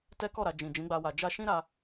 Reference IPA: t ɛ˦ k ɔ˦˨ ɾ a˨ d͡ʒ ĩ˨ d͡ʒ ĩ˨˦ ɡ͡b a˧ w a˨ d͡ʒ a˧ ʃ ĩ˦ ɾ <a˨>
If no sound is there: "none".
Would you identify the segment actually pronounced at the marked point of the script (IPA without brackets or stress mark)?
a˧